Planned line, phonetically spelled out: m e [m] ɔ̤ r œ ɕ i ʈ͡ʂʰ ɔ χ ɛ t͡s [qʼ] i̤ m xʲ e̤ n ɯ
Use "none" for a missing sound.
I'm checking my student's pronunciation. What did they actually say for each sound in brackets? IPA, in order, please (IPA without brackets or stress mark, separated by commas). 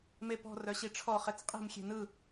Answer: p, qʼ